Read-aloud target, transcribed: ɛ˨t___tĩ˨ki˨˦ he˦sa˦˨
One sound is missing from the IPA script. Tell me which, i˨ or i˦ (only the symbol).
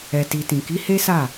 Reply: i˨